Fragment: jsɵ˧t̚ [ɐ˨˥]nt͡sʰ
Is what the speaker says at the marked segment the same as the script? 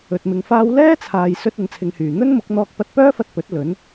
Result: no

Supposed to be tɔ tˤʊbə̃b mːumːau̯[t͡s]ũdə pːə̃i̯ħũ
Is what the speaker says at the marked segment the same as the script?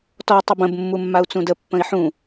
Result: yes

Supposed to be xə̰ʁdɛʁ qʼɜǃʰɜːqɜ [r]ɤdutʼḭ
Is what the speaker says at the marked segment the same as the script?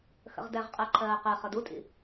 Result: no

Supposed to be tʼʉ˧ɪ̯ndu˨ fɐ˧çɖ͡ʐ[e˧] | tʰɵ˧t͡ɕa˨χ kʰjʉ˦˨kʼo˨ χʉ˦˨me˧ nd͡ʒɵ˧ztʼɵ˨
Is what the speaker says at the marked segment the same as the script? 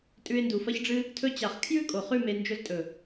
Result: no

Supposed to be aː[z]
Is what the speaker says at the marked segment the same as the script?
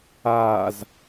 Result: yes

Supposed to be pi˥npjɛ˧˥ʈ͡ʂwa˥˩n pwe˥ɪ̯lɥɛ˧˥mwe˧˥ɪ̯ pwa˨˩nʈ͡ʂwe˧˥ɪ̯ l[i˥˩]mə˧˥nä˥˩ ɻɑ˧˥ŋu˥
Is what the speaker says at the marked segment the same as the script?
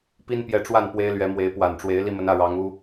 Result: yes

